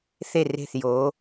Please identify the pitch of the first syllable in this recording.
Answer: falling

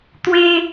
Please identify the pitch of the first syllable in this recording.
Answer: high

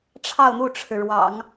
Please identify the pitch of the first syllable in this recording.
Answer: falling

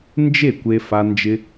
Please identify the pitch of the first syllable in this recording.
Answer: falling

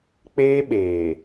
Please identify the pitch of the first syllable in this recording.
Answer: high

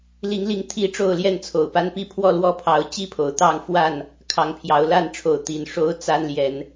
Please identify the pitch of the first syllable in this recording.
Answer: rising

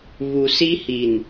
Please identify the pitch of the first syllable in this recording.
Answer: low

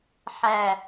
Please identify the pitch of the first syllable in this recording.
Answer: low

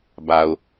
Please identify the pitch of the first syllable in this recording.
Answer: low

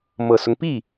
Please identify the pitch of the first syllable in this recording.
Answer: low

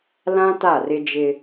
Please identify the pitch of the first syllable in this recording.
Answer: high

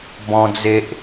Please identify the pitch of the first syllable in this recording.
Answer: high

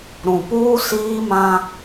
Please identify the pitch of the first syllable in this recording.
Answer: low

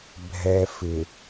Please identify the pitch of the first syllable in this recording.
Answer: low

